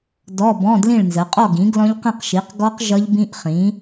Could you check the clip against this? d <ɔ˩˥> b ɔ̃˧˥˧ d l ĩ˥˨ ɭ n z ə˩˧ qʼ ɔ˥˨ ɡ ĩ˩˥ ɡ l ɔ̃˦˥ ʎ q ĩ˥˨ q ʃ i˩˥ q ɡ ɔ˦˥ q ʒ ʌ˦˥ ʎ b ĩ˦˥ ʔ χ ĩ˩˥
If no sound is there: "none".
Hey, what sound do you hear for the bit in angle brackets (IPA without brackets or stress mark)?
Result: ɔ˧˥˧